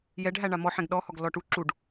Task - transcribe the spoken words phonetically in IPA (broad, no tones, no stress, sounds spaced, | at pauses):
j ɛ ɖ ɦ æ ɳ a m ɔ ħ ɛ̃ ɡ ɗ ɔ h ɔ ɡ l ɔ ʈ u ǁ u ɖ